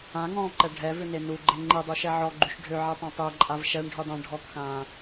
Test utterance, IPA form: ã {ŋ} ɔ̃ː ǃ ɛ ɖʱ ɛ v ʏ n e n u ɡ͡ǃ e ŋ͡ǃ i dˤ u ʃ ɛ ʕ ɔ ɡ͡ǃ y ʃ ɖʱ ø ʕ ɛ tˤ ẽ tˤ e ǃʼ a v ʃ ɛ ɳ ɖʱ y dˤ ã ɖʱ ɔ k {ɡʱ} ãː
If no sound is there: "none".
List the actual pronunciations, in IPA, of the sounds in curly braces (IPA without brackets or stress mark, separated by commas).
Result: ŋ, x